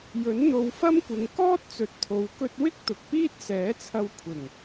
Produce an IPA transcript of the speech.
jɵ˨˥nn̪o˨˧wfɐ˥mkʷɪ˨˧ŋ kɔː˥t̚t͡sɵ˨t̚t̪ʰo˨w kɵ˧t̚wɪ˥k̚ t̪ʊ˨k̚piː˥t̚sɛː˨˥t͡sʰɐ˧w kʷʰɪ˨˩ŋ

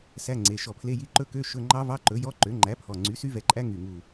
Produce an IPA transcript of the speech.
sæ˧˥˧ŋ͡ǀe˩˧˩ ʃɔ˧˩pʰle˧˥˧ji˧˥˧ ǃɵ˦˥kø˧˥˧ ʃɵ˧˥˧ ŋ͡ǃɑ˦˥vɑ˧˥˧ǃɵ˩˥ jɔ˧˥˧ǃø˩˥ ŋ͡ǃæ˩˥pʰɔ˩˧˩ ŋ͡ǀy˩˥sy˦˥vɛ˧˩ǃʼæ˦˥ ŋy˧˩ŋu˧˩

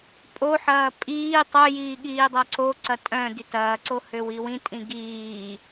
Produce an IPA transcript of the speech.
pʼoħɐː pʼiː tˤœjiː ɠiːdˤɐǀoǀɐ tʼœ̃ dytɐːǀo høwiwĩtʼĩ ɡiː

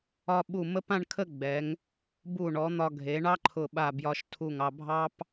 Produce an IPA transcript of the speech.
ɒ˧ɓu˧˩ mə˥p ã˥˧ɳkʰə˥˧ɡ͡bɛ˩˧ŋ | bu˧˩ɳɔ˩˧ n̪ɒ˧ ɡʱe˩˧ɳɑ˥ǃʰʊ˧˩ ɓa˧˩bjɒ˧ʃtʰu˧˩ŋɑ˧ bʱɑ˥p

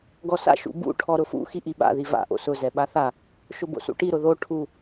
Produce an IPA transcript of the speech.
ɡɔsa̰ ʃṵbṵ ʈʰɔɾʊfṵ xiʔiɓa̰ ðiva̰ ʔo̰sʊ zɛɓaθa | ʃʊbo̰sṵʈi ɾʊðo ʈʰu

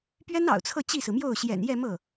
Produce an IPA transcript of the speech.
pɥɛ˥nɑ̰˨˩ʊ̯t͡sʰɤ˥˧ t͡ɕi˥˩sɹ̩˩mjo˥˩ʊ̯ ɕjɛ̰˨˩njɛ˥˧mɤ˥˩

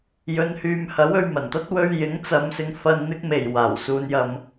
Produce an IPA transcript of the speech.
jɵ˨˧nhyː˨mhɐ˨˥w ɵ˨ɥmɐ˨˩nt̪ɐ˥t̚ wɵ˧ɥjɪ˨˥ŋt͡sɐ˨˧m sɪ˨˧ŋfɐ˧n n̪ɪ˥k̚me˨˩j waː˨˩wsuː˧n jɐ˧m

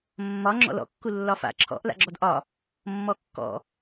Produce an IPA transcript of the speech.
mːɒ ŋ͡ǁɔ̰lɔ̰kːu lːɒfa̰ ǁʰɔ̰ʔ la̰ɡ͡ǁɔdʔɒ | mːɔkːɔ̰

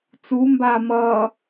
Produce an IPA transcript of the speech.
t͡sumbaː mʌ

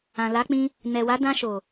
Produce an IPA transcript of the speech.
ã˨la˨˦k͡pĩ˧ | nɛ˨wa˨˦ dã˧ʃo˨

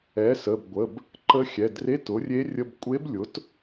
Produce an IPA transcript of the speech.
ɛ˩˥sə˩˧˩bɡʷə˩˧˩b | ǃə˧˥xʲɛ˩˧˩dre˧˥˧t ʊ˩˥rʲe˧˥rʲə˧˥˧b kʷʼe˧˥b lʲʊ˩˥t

